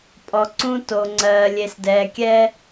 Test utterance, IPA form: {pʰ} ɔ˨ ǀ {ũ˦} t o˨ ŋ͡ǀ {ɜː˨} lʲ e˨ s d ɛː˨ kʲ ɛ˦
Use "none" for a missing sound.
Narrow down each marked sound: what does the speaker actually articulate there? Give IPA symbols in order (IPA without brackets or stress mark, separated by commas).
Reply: pʼ, ũ˦, ɜː˨